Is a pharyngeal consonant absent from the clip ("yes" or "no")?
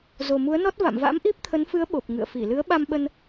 yes